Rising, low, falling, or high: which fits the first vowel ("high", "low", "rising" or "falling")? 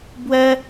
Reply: high